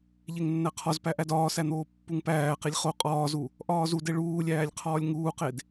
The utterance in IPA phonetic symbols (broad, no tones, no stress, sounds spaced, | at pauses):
ʎ e ŋ nː æ qʰ ɒ z p æ ʔ æ d ɒː s æ n̪ oː pː u ŋ p æː q i lʲ χ o qʼ ɒː z u | ʔ ɒː z u d e ɭ uː lʲ æː lʲ qʰ ɒː lʲ ŋ uː q e d